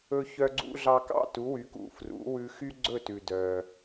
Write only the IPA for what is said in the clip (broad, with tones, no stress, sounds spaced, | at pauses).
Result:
ɵ˧ ç œ˧ ɡ͡ǀ ṵ˧ ɮ ɑ˧ k ɑ̰˥˩ t u˩˥ w y˩˥ k ṵ˩˥ f r ṵ˩˥ w ʉ˧ x y˥ ɡ͡ǀ ɵ˥˩ t ʉ˩ d œː˩